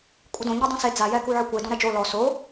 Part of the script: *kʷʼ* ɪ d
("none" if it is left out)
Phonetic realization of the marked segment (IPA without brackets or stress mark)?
kʷʼ